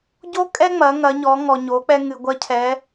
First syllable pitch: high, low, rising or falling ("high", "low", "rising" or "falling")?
high